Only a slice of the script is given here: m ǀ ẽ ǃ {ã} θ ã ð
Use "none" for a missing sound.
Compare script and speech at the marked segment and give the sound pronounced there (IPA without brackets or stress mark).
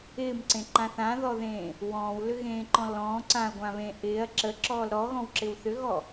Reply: ã